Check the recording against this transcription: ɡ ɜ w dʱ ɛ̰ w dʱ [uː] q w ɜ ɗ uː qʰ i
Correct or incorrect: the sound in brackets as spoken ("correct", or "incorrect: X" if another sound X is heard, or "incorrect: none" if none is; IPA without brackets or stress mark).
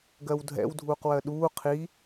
correct